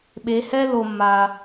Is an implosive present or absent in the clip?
present